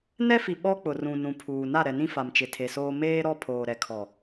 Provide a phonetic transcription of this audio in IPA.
n ɛ˦ f i˨ ɓ ɔ˦ k͡p ʊ˨ r ũ˨ n ũ˨ pʰ uː˨ n a˦˨ ɾ ɛ˨ n ĩ˦ f a˨ m t͡ʃ ɪ˨ tʰ e˨ s oː˦ m eː˦ ɾ ɔ˦ pʰ oː˨ ɾ ɛ˨ kʰ ɔ˨

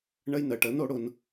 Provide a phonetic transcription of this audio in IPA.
ɳ ə˧ j n ə˨ ʈ ə˨˦ n o˨˦ ɽ ʊ˧ n

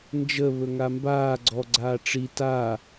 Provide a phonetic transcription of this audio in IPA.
n d͡ʒ ə β ɵ ŋ a m b aː ɡ͡ǀ ɔ ɡ͡ǀ aː ʈ͡ʂ i t a

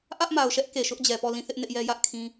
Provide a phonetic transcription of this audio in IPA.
ʔ ä˦ ʔ m a˨ ʊ̯ ʃ ɛ˦ ʔ k e˨ ʃ ʊ˦ ʔ d͡ʑ ɛ˨ p ɔ˦˨ l ĩ˦˨ θ ɪ˦ ʔ n ɪ˦ ʔ j ɛ˦ j ä˦ ʔ kʰ ĩ˦

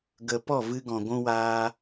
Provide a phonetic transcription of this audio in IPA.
ɡ ə˨ p ɔ˦˨ v ɨ˧ ɡ ɔ̃˨ ɡʷ ũ˧ w aː˧

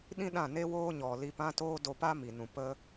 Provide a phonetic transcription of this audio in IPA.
ɗ ĩ˦ ɗ ã˦˨ n e˦ w oː˦ ɲ ɔ˨ l i˧ p ã˦ t oː˦ d o˧ p a˦ m i˨ n ũ˨ p ə˦

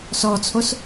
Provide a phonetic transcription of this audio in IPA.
s ɔ t͡sʰ o s

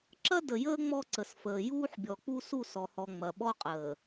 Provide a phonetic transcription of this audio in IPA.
ǁ ɐ˦ d ə˨ j əː˦ ŋ͡m ɔ˦ ǀ ə˨ s f əː˨ j uː˦ ħ bʲ ɔ˨ k͡p u˦ s u˦˨ s ɔ˨ h ɔ˨ ŋ͡m ɐ˨ ɓ ɔ˦ qʼ əː˨

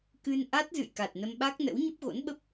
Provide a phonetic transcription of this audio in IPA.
k ɨ˧ n ʔ a˦˥ t̚ z ɨ̰˧˨ j k a˨˩ t̚ n ə˧ m ɓ a˦˥ k̚ n ə̰˧˥ w ɲ ə˦˥ p̚ ɣ o̰˧˥ n ɓ ə˦˥ p̚

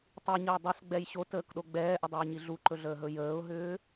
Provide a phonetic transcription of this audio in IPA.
tˤ i ɲ əː dˤ ɵ s ɡ͡b ɛ j ɕ o t əː k ɗ o ɡ͡b ɛː ʔ ə dˤ uː ɲ i ɮ u ǃ ɵ ɮ əː ɦ ɵ j əː ʊ̯ ɦ ʏː

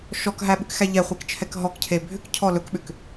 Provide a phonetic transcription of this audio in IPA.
ʃ ɔ k ɦ æ ɓ ʏ k x æ ʎ ɛ χʷ e k t͡ʃʰ ɛ k ɦ ɔ k cʰ e bʱ ʏ k cʰ ɔ l ɵ k ɓ ʏ k

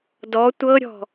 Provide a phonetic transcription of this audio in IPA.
d ɔ tʷ ɤ ɾʲ ɔ̤

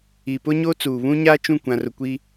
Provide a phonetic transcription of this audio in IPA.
i˨ p ʊ˦ ɲ o˦ t͡s uː˨ β ũ˦ ɲ aː˦ t͡ʃ ũ˦˨ kʷ ã˨ r ʊ˨ kʷ i˦

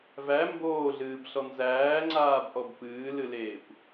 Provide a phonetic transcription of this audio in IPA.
v æ m b oː ɮ ɨː b ɬ ɔ n z æː ŋ͡ǀ aː b ʔ ɔ b p ɨː l ɨ l eː kʷ

